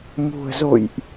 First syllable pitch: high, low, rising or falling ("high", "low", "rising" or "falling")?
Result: low